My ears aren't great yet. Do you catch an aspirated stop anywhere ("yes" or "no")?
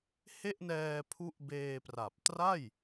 yes